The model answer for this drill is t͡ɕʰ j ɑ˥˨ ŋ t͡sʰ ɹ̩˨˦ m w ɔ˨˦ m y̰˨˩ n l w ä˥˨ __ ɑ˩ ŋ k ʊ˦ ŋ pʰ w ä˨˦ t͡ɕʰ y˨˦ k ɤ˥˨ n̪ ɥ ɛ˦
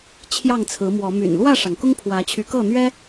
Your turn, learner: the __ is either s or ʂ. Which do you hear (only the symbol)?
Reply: ʂ